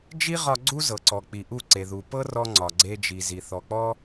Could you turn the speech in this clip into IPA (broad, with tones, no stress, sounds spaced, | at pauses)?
d͡ʒ i˦ ʁ ɒ˧ ɡ͡ǀ u˦ z ɤ˨ ǀ ɔ˨ k͡p i˨ ʔ u˦˨ ǀ e˨ ð u˨ p ɤ˦ r ɔ˧ ŋ͡ǀ ɒ˨ ɡ͡ǀ e˧ d͡ʒ i˨ z i˨ θ ɔ˨ k͡p ɔ˦